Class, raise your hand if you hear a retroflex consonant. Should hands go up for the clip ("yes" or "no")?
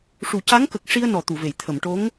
yes